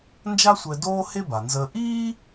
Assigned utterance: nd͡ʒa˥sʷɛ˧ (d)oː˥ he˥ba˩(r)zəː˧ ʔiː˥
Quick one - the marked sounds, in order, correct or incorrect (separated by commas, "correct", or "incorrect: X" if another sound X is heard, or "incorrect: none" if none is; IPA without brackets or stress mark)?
correct, incorrect: n